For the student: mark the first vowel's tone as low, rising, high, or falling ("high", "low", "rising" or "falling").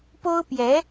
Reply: high